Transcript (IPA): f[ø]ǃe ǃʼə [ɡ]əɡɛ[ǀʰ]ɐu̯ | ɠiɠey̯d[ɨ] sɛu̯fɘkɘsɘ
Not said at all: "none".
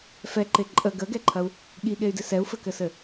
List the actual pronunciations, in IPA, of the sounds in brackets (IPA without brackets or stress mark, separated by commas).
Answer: ɛ, ɡ, ǃʰ, ɪ